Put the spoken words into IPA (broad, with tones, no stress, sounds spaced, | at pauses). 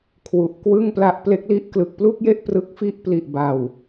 kʰ w u˨˩ ʔ k w ɯ˥˩ ŋ p l a˦˥ ʔ p l e˦˥ k̚ l i˦˥ ʔ k l ɯ˨˩ k̚ p l u˥˩ k̚ j e˥˩ ʔ p r ɯ˦˥ k̚ f i˥˩ ʔ p l i˨˩ ʔ b a˨˩ w